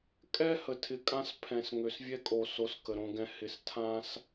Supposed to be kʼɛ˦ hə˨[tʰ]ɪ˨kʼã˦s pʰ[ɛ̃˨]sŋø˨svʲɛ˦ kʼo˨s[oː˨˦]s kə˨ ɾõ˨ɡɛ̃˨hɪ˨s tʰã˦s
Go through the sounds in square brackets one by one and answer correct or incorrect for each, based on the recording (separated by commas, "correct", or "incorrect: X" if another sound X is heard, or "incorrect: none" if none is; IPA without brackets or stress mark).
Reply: correct, correct, incorrect: o˨˦